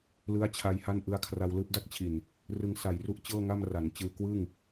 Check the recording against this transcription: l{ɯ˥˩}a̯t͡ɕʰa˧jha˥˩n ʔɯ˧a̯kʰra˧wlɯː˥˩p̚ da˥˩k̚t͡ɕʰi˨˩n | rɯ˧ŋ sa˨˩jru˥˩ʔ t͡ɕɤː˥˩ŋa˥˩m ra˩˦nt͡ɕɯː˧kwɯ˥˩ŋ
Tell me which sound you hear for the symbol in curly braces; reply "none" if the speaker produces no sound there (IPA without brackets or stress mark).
ɯ˦˥